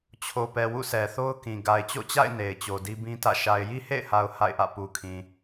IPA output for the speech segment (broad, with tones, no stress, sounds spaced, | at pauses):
t͡ɕʰ o˨ p ɛ˨ w ṵ˦˨ s ɛ˨ θ o˦ ʊ̯ k ĩ˨ ɡ a˨ ɪ̯ t͡ɕ o̰˦˨ t͡ɕ a̰˦˨ ɪ̯ n e˨ ɪ̯ t͡ɕ o˨ d i˦ b ĩ˦ t ä̰˦˨ ʃ a˨ ɪ̯ j i˦ h ḛ˦˨ ɪ̯ h a˨ ʊ̯ h a̰˦˨ ɪ̯ ʔ ä̰˦˨ p u˨ kʰ ĩ˨